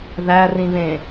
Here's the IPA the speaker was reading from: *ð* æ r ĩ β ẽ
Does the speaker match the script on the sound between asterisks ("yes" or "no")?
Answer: yes